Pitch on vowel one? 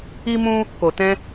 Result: high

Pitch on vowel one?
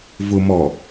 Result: low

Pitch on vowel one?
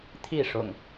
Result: falling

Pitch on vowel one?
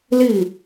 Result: falling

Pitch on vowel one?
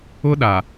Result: high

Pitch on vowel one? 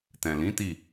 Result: low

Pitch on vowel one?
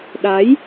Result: rising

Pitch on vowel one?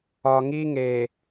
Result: low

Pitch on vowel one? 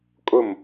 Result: falling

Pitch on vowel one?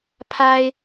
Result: low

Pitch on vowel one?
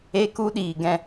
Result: high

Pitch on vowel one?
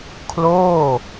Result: falling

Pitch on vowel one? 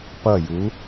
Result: falling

